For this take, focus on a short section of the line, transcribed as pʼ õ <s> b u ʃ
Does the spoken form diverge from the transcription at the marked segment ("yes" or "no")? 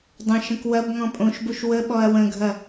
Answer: yes